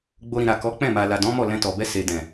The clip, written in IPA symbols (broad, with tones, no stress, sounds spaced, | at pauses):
ɡ͡b o˧ ɾ ĩ˨ ɾ a˨ k ɔ˨˦ k͡p ɛ̃˦˨ m a˨ l a˨ d ɔ̃˨˦ m ɔ˦˨ l ɛ̃˧ t ɔ˨ b ɛ˧ s e˨ d ɛ̃˨